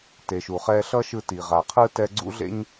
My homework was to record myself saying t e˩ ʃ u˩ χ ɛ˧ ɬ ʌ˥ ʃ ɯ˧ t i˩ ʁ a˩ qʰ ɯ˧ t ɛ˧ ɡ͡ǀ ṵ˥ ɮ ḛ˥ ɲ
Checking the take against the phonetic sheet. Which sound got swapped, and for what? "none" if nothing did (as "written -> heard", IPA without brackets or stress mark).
none